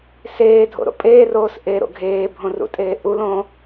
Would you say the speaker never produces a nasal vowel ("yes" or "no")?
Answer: no